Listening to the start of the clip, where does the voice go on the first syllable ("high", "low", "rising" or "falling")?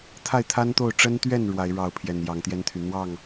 falling